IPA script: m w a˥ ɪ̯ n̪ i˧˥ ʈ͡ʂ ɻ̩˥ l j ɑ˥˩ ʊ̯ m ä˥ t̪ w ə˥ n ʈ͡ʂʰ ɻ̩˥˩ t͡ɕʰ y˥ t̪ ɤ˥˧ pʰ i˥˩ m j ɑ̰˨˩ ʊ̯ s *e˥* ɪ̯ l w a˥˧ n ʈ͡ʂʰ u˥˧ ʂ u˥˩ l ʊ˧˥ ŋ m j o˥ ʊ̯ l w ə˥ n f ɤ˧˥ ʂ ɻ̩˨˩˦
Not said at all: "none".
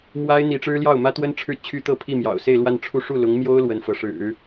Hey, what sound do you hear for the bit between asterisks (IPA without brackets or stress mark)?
e˥˧